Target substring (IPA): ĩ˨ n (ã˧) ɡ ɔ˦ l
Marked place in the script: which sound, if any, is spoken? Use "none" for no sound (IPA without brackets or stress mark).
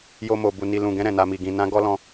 ã˧